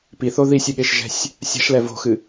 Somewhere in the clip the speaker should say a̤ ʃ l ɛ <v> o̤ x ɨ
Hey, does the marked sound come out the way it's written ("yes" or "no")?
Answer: yes